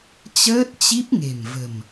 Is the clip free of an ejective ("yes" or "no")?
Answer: yes